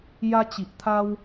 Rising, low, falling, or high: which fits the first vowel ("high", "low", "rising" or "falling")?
high